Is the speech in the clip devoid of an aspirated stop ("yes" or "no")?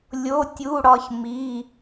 yes